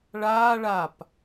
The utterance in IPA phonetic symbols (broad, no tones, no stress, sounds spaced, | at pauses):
ɭ aː ɭ a p